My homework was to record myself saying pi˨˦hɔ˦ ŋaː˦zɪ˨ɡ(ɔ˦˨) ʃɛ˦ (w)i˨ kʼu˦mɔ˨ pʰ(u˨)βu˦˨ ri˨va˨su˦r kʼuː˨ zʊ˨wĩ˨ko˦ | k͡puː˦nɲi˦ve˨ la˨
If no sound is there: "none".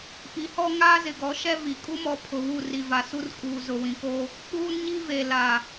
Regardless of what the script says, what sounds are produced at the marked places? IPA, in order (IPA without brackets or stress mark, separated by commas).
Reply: ɔ˨˦, v, ʊ˨